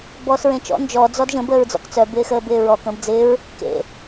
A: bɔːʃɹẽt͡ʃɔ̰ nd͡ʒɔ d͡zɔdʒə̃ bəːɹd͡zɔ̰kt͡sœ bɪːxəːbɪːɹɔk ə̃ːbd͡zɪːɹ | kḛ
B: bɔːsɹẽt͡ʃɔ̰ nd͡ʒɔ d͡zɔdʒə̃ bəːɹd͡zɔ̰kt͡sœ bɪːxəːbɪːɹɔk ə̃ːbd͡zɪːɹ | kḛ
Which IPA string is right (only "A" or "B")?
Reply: B